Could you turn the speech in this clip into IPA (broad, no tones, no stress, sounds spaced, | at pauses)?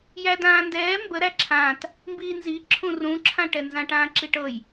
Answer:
j æ d ãː n d ɛː m b ə ɾ æ ǁʰ ãː t | m b iː n z i ǁʰ ũ r ũ ǁʰ ã ʈ ɛ n z ã ʈ ãː ǁ i ʈ ɤ j